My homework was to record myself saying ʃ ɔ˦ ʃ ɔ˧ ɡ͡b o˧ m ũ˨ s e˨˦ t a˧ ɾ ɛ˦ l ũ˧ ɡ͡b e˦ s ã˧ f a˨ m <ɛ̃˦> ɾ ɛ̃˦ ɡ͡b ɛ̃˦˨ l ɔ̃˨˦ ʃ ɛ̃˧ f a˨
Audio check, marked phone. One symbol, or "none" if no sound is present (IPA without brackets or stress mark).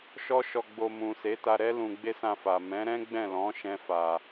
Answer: ɛ̃˨˦